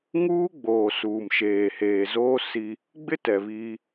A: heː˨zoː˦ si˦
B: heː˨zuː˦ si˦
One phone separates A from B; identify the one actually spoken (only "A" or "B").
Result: A